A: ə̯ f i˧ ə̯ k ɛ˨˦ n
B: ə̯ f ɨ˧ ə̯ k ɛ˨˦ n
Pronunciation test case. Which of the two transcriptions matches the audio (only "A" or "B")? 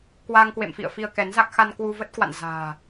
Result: A